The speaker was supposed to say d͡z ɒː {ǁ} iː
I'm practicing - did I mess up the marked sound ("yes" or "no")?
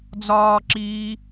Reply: no